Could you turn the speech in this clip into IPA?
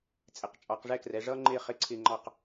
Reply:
t͡sʼɪ˩˧qt͡ʃʼɑ˩˧q ʐɛ˥˧krɛ˩˧ ʐʌ˧ŋ͡ǃɪ˧˩ χɪ˧ǀʰɪ˧˩ŋ͡ǃɑ˧˩q

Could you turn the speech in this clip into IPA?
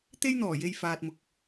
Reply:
t̪e˥jn̪ɔː˨˩je˧j faː˨t̚mʊ˨k̚

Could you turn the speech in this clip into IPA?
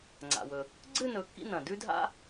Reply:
ŋ͡ǀa̰˩wɵ˩ | ɡ͡ǀɨ˥˧ nɵ˩˥kːḭ˥˧nɐ̃˩ dʉ˥dʱa̰˥

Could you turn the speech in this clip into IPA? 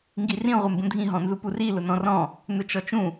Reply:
ŋɡirĩ ʁʷembũdʱĩ ɦɔ̃nzupuri lʊnɔ̃rɔ̃ | nʊt͡ʃɔt͡ʃũ

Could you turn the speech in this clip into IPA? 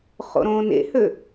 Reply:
χo̰ɾõːnḛhø

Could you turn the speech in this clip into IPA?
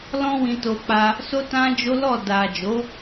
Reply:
lɔ̃˧wĩ˨to˨ k͡pa˧ | so˦tã˦d͡ʒo˦lɔ˦˨ da˨ d͡ʒo˨˦

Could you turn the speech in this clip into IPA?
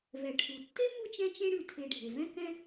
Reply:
vɛ˩ʈʰu˩ tːe˥mu˦ t͡ʃɛ̃˥t͡ʃẽ˥ ɽʉ˨tʰe˨ɖʱe˩ vɛ̃˥kɛ̃˥

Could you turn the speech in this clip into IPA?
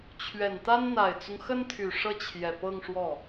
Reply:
t͡ɕʰɥɛ˨˩nt̪a˥n n̪a˨˩ɪ̯t͡sʊ˦ŋxə˥nt̪ʰy˨˩ ʂɤ˥˩t͡ɕʰjɛ˨˩pɤ˥˧ŋ ʂwɔ˥˩

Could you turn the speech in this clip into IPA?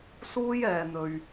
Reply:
suː˥jɛː˨n̪ɵ˨ɥ

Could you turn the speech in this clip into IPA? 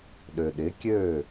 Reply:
ɗø˨ɗɪ˨˦kʲø˦˨

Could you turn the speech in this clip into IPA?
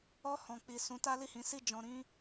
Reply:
ɔ˧ hɔ̃˨k͡pi˨ sũ˨˦ta˦ li˦˨hĩ˨˦si˦˨ d͡ʒɔ̃˧ɾĩ˦

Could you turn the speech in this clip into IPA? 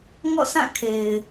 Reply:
ŋɔ̰˦˨sʰã˦˨ kʰe˨ɪ̯

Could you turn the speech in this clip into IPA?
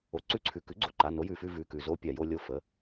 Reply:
o˩ǀʉ˧˥ǀʰʉ˩ kʉ˩˥ɡ͡ǀo˩ǃa˩˧˩ no˩˥jʉ˩fʉ˦˨ vʉ˩˧˩kʉ˩ zo˧˥ pʲa˩jo˦˨ lʲo˦˨ fə˩˧˩

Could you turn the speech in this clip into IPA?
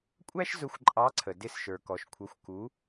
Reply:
kʷʼæ˥ʃ zʊ˧˥xʷǃʼɑ˧˥ǀʰə˩ dɪ˧s ʃə˞˩kɔ˩ʃkʷʰʌ˩˧xʷ ku˩˧

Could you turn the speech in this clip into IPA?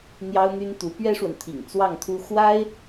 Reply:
n̪jɑ˥ʊ̯n̪y˥n t̪u˧˥ pɥɛ˥ʂwə˨n t̪ʰḭ˨˩ŋ t͡swɑ˥˩ŋt̪ʰu˥ xwa˥ɪ̯

